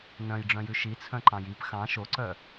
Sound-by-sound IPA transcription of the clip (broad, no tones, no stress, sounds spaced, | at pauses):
n œ̃ j ɖ͡ʐ œ̃ j ʉ ʃ i t͡sʰ œ̃ ǃ ɑ̃ j i p x ɑ̃ ʃ o ǀ œ